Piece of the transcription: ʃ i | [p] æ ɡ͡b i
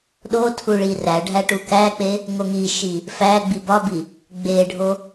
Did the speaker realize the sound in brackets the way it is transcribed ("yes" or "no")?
no